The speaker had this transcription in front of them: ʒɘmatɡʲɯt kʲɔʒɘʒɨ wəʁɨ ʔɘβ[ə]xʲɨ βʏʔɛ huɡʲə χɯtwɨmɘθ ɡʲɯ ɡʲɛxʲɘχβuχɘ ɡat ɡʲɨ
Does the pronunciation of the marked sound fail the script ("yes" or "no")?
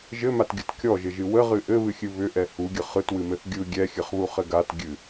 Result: yes